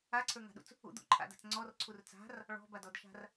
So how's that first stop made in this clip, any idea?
click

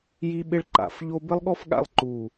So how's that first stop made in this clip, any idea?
implosive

